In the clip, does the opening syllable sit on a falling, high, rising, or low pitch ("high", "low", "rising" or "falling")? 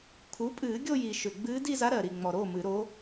rising